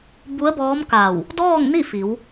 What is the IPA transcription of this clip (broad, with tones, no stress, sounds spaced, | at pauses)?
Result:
b u˧˥ ə̯ b ɔː˧˥ m k a˧˩ w | d ɔː˥˨ ŋ n i˥˨ f i˩˧ w